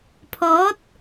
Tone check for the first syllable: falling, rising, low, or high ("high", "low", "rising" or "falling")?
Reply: rising